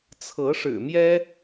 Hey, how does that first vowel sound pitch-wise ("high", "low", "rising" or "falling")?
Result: rising